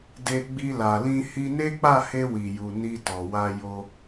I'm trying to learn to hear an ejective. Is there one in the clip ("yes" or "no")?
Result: no